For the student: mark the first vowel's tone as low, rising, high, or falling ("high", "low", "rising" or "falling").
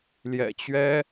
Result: low